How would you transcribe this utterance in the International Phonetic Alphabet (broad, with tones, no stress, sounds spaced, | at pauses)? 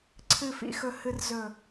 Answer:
ǀʰ ɨ˨ f ḭ˨ x ɵ˨ h ɨ˨ r z ɵ˨